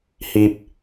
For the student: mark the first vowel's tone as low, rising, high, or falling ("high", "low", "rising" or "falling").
low